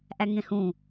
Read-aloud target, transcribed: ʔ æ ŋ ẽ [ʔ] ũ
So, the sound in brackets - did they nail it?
no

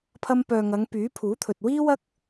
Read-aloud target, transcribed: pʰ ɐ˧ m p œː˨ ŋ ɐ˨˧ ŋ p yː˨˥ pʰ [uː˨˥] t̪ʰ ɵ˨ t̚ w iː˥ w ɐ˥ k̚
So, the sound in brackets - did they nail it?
yes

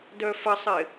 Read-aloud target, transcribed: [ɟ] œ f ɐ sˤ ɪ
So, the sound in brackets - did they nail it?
no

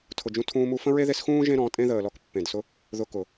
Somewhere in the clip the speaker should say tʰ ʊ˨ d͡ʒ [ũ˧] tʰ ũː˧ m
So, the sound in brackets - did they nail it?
yes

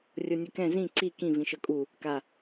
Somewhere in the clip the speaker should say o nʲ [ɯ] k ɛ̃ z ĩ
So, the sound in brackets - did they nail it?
yes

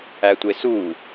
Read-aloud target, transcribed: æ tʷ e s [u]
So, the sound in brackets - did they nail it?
yes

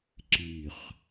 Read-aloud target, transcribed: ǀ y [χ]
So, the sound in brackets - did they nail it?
yes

